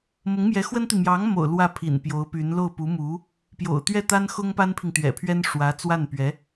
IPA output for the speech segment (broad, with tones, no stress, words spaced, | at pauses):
mʊ˧˥ŋmjɛ˧˥xwə˥nt̪i˨ mjɑ˧˥ŋmo̰˨˩ʊ̯ lwä˥˩pʰḭ˨˩n pjo˧˥ʊ̯py˧˥n lo˥˩ʊ̯pu˧˥mu˧˥ | pjo̰˨˩ʊ̯t̪ɥɛ˥˩t̪a˥n xʊ˥ŋpa˥npʰi˨ŋ t̪ɥɛ̰˨˩pʰɥɛ˥n ʂwä˧˥t͡swa˥˩npɥɛ˧˥